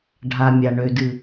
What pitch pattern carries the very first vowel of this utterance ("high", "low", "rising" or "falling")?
low